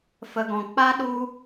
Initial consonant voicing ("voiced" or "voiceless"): voiceless